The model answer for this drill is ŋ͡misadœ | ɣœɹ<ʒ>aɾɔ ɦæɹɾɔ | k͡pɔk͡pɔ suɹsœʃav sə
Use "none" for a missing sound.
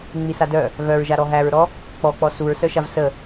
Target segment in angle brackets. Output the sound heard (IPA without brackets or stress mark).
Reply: ʒ